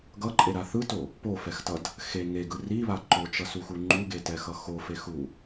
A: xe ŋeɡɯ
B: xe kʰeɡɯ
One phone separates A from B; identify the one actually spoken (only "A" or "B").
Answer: A